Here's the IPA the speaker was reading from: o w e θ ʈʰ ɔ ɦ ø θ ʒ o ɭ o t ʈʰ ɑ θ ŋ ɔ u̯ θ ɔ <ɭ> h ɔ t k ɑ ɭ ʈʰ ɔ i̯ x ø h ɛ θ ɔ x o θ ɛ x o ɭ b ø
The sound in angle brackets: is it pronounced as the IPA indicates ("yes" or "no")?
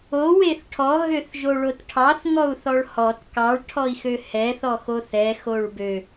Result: yes